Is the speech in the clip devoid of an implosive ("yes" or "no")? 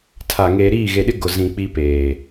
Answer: no